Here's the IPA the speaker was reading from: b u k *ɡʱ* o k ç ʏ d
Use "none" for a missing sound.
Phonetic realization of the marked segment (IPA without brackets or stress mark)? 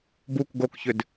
ɡ